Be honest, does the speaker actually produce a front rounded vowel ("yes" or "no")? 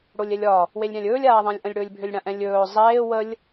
yes